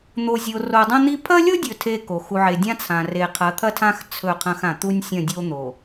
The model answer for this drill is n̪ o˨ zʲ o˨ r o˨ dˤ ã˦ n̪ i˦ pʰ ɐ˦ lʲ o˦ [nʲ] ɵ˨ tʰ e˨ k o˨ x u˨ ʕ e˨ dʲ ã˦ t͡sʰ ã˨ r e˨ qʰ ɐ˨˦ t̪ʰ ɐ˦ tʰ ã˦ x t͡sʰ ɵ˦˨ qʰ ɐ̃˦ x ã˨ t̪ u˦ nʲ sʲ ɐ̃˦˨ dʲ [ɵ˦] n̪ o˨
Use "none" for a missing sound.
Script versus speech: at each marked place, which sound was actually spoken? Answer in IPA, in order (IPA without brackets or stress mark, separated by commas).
dʲ, o˦